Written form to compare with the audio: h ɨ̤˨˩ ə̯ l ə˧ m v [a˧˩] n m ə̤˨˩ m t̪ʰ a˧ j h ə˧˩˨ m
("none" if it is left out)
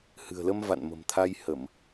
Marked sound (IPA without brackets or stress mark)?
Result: a̰˧˨